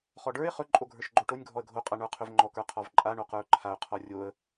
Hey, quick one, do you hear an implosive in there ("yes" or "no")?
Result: no